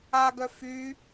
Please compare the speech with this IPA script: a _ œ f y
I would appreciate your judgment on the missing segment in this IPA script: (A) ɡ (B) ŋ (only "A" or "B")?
A